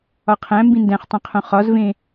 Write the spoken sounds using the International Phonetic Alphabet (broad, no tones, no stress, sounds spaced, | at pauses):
ɒ qʰ æ̃ m b ĩ n d æ̃ χ tˤ ẽ qʰ õ χ ɒ z v ẽ